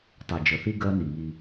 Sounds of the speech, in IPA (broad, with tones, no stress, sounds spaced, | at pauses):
tˤ e˨ d͡ʒ ə˨ θ i˦ ɡ ɜ˦ n i˨ ŋ i˦